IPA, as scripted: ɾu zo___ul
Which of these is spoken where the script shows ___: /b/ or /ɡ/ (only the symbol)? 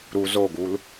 ɡ